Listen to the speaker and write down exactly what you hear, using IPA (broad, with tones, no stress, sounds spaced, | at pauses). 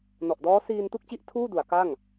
n ɔ˨˩ ʔ d ɔː˦˥ s iː˧ n t u˥˩ k̚ t͡ɕ i˦˥ ʔ tʰ uː˥˩ d u˩˦ a̯ k a˥˩ ŋ